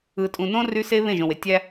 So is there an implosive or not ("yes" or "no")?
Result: no